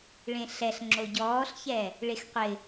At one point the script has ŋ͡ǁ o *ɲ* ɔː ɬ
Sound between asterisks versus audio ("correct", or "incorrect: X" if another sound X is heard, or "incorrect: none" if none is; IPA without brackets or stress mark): incorrect: ɟ